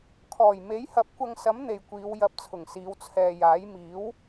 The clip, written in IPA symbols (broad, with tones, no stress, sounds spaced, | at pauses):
kʰ ɔː˨˩ j m e˨˥ j h ɐ˨˥ p̚ kʷ ɐ˧ ŋ s ɐ˨˥ m n̪ e˨ j kʷ iː˨˧ w j ɐ˧ p̚ t͡sʰ ʊ˨˩ ŋ s iː˨˧ w t͡sʰ ɛː˨ j aː˨˥ j m iː˨˥ w